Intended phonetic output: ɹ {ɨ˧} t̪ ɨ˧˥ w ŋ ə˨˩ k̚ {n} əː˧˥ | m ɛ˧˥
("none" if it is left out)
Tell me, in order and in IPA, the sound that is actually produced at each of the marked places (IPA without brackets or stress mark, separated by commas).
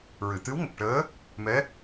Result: ɨ˨˩˨, ʈ